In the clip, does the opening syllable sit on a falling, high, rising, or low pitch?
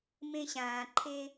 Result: high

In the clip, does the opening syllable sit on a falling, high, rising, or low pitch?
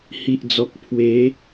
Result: low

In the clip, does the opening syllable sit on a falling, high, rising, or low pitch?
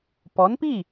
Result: rising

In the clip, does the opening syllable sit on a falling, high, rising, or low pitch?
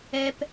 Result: high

